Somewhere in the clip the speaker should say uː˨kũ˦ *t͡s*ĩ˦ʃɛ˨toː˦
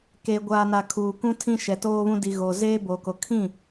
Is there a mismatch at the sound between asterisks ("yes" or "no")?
yes